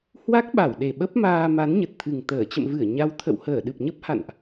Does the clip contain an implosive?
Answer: yes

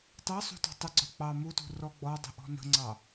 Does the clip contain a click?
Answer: yes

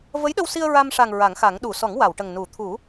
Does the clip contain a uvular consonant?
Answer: no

